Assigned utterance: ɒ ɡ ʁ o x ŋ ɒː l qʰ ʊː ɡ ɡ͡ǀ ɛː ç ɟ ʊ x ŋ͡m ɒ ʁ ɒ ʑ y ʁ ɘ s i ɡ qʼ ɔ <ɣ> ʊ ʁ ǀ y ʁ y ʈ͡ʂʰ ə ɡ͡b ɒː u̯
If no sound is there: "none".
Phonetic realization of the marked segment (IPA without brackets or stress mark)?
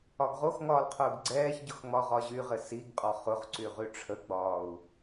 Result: χ